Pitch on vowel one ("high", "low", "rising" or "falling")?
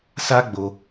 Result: high